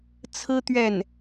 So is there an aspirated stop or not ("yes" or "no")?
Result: yes